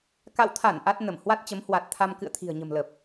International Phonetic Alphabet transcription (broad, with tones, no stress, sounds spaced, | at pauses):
k a̰˧˨ w t̪ʰ a˧˩ n ʔ a˦˥ t̚ n ə˧˩ m h w a˦˥ t̚ t͡ɕ ə˨˦ m h w a˨˩ t̚ t̪ʰ a˧ m k ɨ̰˧˨ ə̯ t̪ʰ i̤˨˩ ə̯ ɲ ə̤˨˩ m l ə˨˩ p̚